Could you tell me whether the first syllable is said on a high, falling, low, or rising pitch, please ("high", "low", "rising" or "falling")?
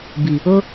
low